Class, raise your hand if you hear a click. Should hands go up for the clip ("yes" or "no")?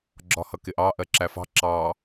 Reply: yes